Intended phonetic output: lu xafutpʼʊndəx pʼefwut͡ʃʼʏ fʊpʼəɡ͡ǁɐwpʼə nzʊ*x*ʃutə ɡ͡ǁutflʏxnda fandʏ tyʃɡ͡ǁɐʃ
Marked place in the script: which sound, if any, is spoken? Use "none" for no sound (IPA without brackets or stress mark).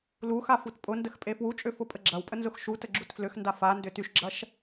x